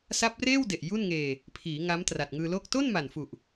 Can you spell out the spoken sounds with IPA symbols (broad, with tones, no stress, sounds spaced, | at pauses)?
s a˦˥ p̚ r eː˥˩ w d e˨˩ ʔ j u˥˩ n ŋ eː˧ | pʰ iː˩˦ ŋ a˦˥ m t r a˨˩ t̚ ŋ ɯː˧ l oː˥˩ k̚ t o˥˩ n m a˨˩ n f u˨˩ ʔ